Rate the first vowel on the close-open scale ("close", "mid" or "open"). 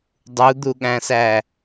close